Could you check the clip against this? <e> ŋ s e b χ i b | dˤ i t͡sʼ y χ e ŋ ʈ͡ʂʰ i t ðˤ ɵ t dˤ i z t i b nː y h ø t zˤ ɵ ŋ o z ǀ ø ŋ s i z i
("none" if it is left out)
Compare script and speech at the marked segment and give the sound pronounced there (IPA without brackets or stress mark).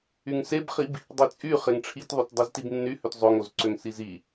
y